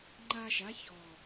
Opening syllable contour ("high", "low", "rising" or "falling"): high